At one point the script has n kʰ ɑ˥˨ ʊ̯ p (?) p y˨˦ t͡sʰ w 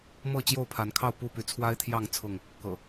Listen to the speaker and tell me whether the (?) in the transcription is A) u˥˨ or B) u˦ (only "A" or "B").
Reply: A